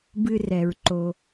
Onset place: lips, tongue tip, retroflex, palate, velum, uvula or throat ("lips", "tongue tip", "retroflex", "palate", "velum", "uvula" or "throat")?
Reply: lips